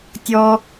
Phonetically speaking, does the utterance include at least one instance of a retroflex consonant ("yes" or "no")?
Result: no